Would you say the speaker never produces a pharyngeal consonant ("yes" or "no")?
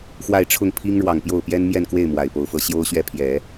yes